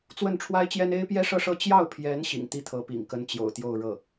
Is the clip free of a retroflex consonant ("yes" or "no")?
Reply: no